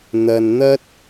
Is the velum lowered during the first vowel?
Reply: no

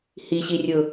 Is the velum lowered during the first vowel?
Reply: no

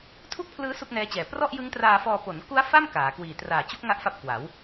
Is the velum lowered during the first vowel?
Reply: no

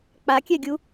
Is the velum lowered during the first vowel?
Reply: no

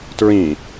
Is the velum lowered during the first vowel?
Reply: yes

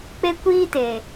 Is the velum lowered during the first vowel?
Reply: no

